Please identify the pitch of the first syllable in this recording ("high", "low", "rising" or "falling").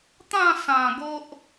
falling